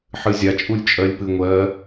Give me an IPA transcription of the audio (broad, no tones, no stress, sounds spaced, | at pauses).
ħ ɨ zʲ a t͡ʃʼ u lʲ t͡ʃʼ ɜ lʲ p ɨ ŋʷ ɜ